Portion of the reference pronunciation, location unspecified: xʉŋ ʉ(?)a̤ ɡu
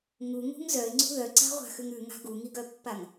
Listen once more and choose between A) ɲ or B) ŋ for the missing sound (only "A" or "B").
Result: B